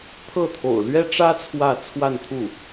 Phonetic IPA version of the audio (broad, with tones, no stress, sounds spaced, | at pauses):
t̪ʰ ɤ˥˩ t̪ʰ o̰˨˩ ʊ̯ l ɥ ɛ˥ ʈ͡ʂ ä˥ t͡sʰ w ä˥˧ t͡sʰ w a˥˧ n t̪ʰ u˥˩